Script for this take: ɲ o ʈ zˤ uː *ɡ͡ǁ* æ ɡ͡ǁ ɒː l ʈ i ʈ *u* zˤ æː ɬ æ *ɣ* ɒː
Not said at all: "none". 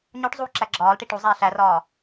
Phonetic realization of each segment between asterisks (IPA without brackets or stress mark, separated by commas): ǁ, u, r